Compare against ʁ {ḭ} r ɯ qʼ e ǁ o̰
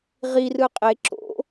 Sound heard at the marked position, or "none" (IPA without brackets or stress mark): i